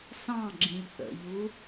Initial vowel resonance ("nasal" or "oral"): nasal